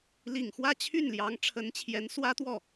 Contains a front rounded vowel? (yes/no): yes